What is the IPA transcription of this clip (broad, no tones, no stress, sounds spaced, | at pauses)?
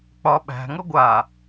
k͡p ɒ ɓ æ̤ ŋ ʌ ɡʷ a